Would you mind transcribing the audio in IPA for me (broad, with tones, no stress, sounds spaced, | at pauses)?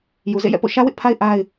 j u˨ z ḛ˦˨ j ɛ̰˦˨ p o̰˦˨ ʃ ä˦ w ɪ˦ ʔ pʰ a˦ ɪ̯ ʔ a˦ ɪ̯